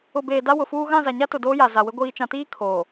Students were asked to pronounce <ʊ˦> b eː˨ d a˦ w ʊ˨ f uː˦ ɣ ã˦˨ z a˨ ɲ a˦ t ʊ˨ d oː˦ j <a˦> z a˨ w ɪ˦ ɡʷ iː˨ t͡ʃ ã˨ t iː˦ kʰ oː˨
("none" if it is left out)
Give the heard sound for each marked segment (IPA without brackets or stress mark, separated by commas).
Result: ʊ˨, a˨